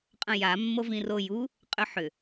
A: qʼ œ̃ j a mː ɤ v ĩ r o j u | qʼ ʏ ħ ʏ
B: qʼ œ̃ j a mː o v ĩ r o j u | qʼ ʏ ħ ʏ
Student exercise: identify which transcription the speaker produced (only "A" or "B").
B